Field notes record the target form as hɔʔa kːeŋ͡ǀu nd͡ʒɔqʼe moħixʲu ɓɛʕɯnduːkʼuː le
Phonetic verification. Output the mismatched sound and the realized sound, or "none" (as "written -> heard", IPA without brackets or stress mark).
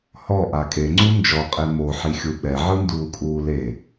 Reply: kː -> kʼ